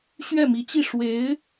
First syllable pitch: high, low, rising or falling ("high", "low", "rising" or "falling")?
falling